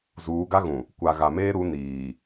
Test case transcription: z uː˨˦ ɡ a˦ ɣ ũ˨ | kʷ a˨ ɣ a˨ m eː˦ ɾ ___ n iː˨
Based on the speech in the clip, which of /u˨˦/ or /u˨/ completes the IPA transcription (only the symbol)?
u˨˦